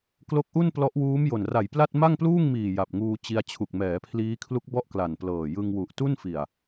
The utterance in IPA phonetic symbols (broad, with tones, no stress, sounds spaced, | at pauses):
k l o˦˥ k̚ ʔ u˥˩ n p l ɔ˦˥ ʔ w uː˦˥ m j o˨˩ n r a˨˩ j p l a˥˩ t̚ m a˥˩ ŋ p l uː˥˩ ŋ m iː˨˩ j a˨˩ p̚ ŋ uː˧ t͡ɕ i˧ a̯ t͡ɕʰ u˨˩ k̚ m ɛː˩˦ pʰ l iː˦˥ kʰ l u˦˥ k̚ b ɔ˥˩ ʔ k l a˨˩ n p l ɤː˨˩ j ɯ˧ ŋ w u˨˩ ʔ t u˥˩ n f i˨˩ a̯